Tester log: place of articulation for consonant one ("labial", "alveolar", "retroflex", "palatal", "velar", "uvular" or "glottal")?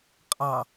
uvular